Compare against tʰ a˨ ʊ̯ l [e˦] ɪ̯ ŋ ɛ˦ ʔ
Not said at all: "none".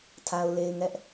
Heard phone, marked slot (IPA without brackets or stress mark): e˨